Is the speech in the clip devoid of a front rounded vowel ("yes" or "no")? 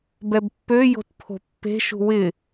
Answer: no